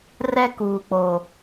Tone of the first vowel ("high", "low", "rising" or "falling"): high